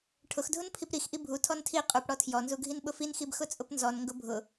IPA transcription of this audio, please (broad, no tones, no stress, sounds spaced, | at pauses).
ʈʰ ʊ x dʱ ʊ n pʰ i p ɾ i x ʔ i bʱ u tʰ ɔ n tʰ i qʼ u p ɽ ɔ tʰ j ɔ n z u ɡʱ i n ɓ ʊ f i n x i b x ʊ t͡sʼ ʊ p n z ɔ n ŋ ɡ ʊ bʱ ʊ